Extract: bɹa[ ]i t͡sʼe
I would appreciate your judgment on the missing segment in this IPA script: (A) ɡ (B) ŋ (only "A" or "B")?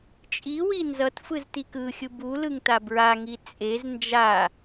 B